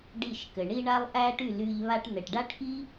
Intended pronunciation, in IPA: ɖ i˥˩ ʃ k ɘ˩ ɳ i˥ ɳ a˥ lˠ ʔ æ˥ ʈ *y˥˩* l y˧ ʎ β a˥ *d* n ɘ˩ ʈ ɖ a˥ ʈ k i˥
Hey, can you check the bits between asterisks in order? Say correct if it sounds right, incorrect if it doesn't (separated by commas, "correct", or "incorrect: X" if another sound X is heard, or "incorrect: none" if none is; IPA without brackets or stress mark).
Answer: correct, incorrect: ʈ